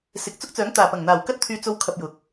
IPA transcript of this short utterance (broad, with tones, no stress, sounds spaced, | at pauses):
s ɪ˨ k̚ t͡s ʊ˥ k̚ t͡s œː˨˥ ŋ t̪ aː˨˩ p ɐ˨˩ ŋ n̪ aː˨˩ w k ɐ˥ t̚ t̪ʰ yː˧ t͡s o˧ w kʰ ɐ˧ p̚ j ʊ˨˥ k̚